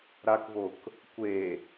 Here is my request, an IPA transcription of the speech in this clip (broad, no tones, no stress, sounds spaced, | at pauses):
ɾ a k v o k | kʷ e